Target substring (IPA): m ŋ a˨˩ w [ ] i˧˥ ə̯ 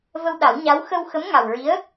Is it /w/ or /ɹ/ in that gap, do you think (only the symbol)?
ɹ